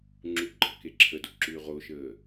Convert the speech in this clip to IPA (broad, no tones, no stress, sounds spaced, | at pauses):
ŋ͡ǁ u ɡ͡ǃ ɐ k e ǁʰ ə d o ǁ ʉː ʁ o ʃ əː